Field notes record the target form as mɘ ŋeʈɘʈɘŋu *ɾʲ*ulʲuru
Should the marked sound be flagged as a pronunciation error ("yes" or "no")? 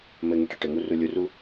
yes